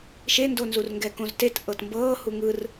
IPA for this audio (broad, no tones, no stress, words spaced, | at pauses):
ʃendonzurŋɡɛ kõztet ʔɤtmbɤː huŋɯr